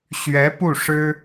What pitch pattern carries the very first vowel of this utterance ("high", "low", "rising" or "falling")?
rising